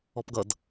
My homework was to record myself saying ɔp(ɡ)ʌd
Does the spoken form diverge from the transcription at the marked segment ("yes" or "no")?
no